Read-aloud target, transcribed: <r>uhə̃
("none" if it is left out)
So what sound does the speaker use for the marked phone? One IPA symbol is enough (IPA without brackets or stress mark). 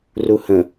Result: r